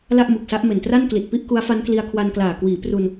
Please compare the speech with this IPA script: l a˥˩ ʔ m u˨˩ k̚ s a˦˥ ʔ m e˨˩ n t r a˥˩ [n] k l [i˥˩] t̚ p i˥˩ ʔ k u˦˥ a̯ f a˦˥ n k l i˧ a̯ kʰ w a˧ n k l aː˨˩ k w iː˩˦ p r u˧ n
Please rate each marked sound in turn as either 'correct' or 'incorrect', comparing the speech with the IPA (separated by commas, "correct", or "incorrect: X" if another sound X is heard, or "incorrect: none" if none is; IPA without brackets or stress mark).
correct, incorrect: i˨˩